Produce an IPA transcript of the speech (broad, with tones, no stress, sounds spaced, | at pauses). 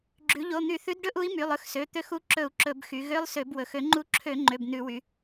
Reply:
ɡ͡ǁ ʉ˩˧ ʎ o˩˧˩ n̪ y˧˩˧ θ ʉ˨˥ d ɖ ɵ˧˥˧ ʔ u˨˥ i̯ m y˩˧˩ lˠ ɵ˧˥˧ x s ø˩˧˩ t̪ ø˨˥ x u˨˥ ǁ ɵ˧˩˧ u̯ ǁ ɵ˧˩˧ b x y˩˧ ɣ ø˧˥˧ lˠ s ø˧˩˧ b w ɵ˩˧ x ø˧˩˧ ŋ͡ǃ u˨˥ ǁʰ ø˧˩˧ ŋ͡ǃ ø˩˧˩ b n ʉ˧˩˧ w y˩˧